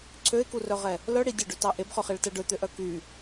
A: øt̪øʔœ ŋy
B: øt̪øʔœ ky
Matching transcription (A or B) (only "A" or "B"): B